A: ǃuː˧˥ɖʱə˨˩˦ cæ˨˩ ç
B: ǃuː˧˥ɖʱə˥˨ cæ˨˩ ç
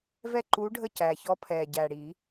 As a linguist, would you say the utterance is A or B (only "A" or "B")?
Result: B